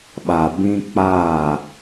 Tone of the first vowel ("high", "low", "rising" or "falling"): low